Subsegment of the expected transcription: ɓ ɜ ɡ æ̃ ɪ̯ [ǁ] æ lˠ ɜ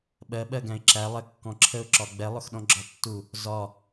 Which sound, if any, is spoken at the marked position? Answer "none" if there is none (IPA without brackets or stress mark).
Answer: ǁ